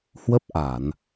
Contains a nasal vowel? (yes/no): no